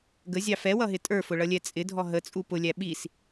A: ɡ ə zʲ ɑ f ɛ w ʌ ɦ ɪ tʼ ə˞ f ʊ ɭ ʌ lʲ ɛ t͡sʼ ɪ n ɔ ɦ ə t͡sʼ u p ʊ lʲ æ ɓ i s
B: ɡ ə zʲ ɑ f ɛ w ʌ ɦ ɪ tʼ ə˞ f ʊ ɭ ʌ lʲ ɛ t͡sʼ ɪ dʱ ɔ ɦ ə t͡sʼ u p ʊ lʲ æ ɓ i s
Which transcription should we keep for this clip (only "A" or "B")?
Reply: B